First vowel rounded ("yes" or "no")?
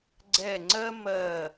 no